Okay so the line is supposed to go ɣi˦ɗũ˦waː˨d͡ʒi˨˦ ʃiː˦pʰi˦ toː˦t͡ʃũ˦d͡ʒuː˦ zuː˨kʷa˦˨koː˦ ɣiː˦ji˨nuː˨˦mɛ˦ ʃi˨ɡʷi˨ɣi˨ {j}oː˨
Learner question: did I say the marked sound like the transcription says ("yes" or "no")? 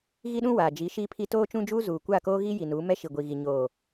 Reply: no